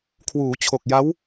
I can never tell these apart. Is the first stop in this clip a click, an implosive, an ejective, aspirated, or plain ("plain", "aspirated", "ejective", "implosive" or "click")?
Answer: aspirated